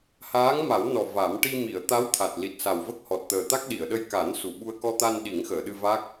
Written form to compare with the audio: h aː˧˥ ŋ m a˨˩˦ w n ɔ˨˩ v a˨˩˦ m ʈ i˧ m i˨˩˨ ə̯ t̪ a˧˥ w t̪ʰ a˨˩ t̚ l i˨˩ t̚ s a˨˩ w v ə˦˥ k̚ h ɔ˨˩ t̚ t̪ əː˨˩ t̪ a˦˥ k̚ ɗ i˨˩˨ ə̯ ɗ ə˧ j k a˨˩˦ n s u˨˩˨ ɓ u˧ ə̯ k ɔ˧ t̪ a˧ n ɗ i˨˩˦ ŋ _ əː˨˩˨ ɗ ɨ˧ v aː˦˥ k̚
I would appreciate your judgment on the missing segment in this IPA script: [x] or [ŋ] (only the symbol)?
x